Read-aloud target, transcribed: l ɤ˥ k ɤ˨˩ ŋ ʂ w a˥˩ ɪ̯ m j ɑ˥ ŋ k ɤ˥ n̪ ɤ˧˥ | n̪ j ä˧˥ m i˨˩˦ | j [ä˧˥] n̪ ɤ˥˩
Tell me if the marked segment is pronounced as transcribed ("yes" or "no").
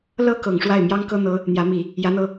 yes